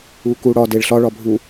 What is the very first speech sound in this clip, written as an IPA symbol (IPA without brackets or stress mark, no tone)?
u